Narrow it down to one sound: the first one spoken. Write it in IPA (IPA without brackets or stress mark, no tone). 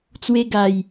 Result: t͡s